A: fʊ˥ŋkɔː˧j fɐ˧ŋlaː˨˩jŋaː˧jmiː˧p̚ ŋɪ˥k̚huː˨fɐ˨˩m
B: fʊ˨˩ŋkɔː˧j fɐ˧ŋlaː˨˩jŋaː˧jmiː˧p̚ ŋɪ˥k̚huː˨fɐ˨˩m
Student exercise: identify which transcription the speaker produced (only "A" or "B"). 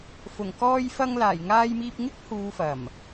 B